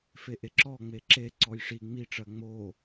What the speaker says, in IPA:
f e ʔ e ǁ ɔ ŋ͡m e ǁ e ǀ ɔ j ʂ i ŋ͡m i ʈ͡ʂ ɜ ŋ͡m o

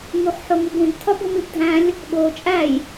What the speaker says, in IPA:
ŋ u χ ħ o ŋ u b ũ b tʰ ɒ b o m i b dʱ æ̃ lʲ | ɠ o t͡ʃʼ æ j

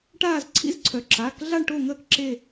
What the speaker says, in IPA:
ʈ aː˦˨ z ǀʰ ḭ˧˥ z ǀʰ œ˩˧ ǁ aː˩˧˩ k ɮ a˦˨ ɳ ʈ o˦˨ ŋ əː˦˨ k ǁ e˦˨

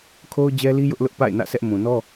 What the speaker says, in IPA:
kʰ o˦ ʊ̯ d͡ʑ ɛ˦ l i˦ j ʊ˦ ʔ l ʊ˦ ʔ p a̰˦˨ ɪ̯ n ä̰˦˨ sʰ ɛ˦ ʔ m ũ˨ n ɔ˦

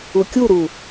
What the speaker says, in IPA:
u kʲ u ɾ u

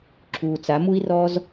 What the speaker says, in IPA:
ǁʰ uː˨ t͡s a˨˦ m u˦ i̯ r ɔ˦ z

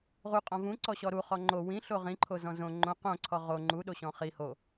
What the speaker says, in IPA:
ʁ u qʼ ɔ̃ v ũ ǀ ɔ ɕ ɔ ɾ u χ ɔ ŋ͡ǃ o w ĩ ɬ o ʁ ĩ ǃʰ o z ɔ̃ z õ ŋ͡ǃ õ q õ ǀʰ ɔ ʁ o ŋ͡ǃ u ɗ o ɕ ɔ̃ χ i h o

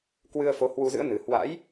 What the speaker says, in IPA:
k w ɨ˧ ə̯ f o˨˦ h w u˧ z ɨ̰˧˥ ə̯ n ɨ˨˩ h w a̰˧˥ j

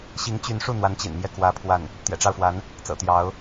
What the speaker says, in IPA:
ɕ i˧˥ ŋ t͡ɕ y˧˥ n ʂ u˥˩ n̪ w a˧˥ n t͡ɕ ḭ˨˩ n m j ɛ˥˩ k w ä˥ pʰ w a˥˩ n | t̪ j ɛ̰˨˩ ʈ͡ʂ ɑ˥˩ ʊ̯ f w a˧˥ n | t͡s ɤ̰˨˩ t̪ j ɑ˧˥ ʊ̯

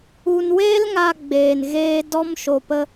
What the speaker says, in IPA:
u˧ n w eː˦ l ŋ a˧ ɡ͡b eː˨ n ɣ eː˧ d ɔ˧ m ʃ o˨ p ə˧

